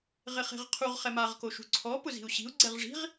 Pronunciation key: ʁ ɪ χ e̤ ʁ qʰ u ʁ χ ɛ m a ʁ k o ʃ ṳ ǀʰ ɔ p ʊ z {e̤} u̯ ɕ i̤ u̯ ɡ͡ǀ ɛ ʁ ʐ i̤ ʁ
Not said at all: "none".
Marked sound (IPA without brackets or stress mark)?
i̤